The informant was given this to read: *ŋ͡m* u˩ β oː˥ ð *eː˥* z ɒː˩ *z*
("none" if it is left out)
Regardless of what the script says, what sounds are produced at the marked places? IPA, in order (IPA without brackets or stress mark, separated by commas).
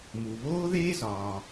m, eː˥, none